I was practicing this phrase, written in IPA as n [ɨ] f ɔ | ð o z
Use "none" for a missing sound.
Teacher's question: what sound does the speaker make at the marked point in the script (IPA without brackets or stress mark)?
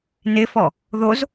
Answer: ɪ